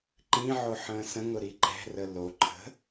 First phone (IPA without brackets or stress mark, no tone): ǃ